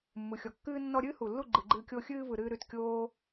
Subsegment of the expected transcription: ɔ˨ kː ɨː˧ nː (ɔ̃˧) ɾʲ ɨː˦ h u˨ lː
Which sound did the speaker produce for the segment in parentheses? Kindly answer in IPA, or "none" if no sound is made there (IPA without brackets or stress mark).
ɔ˧